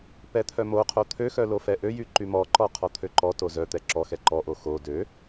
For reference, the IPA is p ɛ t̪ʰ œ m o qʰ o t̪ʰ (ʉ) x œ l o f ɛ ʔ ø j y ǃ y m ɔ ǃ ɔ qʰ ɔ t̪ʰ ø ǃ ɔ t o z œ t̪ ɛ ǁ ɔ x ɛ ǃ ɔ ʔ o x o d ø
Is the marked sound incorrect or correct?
incorrect